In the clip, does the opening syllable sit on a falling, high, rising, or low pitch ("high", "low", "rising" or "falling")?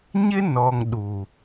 high